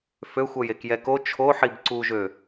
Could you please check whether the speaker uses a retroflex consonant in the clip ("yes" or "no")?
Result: no